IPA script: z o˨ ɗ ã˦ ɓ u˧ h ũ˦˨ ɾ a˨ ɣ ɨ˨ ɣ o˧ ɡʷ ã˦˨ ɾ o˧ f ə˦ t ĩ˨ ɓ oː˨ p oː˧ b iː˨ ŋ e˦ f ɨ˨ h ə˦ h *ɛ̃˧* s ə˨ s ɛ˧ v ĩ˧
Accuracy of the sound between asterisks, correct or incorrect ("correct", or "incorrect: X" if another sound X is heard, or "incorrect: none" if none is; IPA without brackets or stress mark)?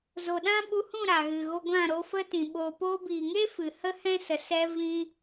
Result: incorrect: ɛ̃˦